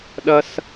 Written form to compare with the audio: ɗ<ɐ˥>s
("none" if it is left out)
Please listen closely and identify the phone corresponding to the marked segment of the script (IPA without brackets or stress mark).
ɐ˥